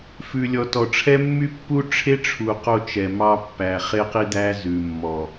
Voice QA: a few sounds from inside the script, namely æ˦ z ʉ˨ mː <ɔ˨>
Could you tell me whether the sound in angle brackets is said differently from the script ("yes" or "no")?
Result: no